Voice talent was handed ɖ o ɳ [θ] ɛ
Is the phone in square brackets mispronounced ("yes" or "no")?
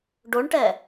yes